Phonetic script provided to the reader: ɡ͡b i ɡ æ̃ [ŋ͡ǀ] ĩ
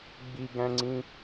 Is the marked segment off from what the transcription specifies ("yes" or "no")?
no